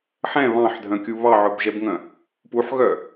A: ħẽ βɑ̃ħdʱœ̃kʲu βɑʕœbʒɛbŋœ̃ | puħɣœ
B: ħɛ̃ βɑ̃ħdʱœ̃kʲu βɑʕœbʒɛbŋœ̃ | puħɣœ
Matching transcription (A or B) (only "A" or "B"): B